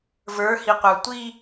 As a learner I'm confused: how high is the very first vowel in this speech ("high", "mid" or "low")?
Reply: mid